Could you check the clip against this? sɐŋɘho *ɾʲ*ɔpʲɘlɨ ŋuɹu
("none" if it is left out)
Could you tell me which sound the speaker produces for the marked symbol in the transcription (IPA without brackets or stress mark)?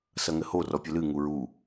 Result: r